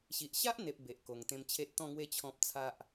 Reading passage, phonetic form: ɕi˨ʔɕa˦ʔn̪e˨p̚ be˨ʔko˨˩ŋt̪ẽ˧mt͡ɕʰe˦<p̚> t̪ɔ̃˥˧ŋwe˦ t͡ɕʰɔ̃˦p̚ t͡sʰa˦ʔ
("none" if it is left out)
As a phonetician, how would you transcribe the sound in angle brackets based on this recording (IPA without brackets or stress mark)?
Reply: t̚